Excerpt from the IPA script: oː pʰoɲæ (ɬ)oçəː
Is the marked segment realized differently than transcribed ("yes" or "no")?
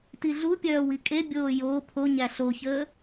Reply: no